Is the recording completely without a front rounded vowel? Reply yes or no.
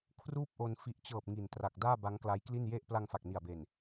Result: yes